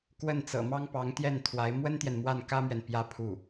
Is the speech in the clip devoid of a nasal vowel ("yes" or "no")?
yes